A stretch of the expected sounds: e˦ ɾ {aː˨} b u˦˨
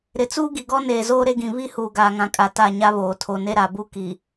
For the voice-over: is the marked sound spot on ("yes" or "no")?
no